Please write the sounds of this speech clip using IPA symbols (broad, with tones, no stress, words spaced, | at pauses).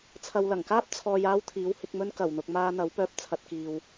t͡sʰɐ˨wlɐ˨˩ŋkaː˥p̚ t͡sʰɔː˨j aː˥wt̪ʰiː˨˥whɪ˧k̚mɵ˥n kɐ˨˩wn̪ʊ˨k̚ maː˧n̪ɐ˨˥w pœː˧p̚t͡sʰɐ˧t̚kiː˨w